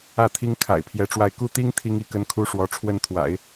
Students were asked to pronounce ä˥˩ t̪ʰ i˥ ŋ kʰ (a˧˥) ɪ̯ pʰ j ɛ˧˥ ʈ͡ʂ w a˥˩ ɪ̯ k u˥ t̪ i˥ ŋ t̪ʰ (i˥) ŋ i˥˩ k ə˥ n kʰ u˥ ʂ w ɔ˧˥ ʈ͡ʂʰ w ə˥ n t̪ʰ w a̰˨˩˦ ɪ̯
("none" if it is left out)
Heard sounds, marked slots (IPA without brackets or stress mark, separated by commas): a̰˨˩, i˥